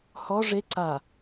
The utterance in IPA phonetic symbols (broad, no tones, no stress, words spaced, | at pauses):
hɔ ʐe ǀa